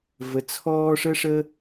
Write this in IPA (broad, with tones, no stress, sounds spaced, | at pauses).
v ə˧ t͡sʰ ɔː˦ ʂ ə˦ ʂ ə˦